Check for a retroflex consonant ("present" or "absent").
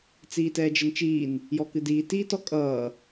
absent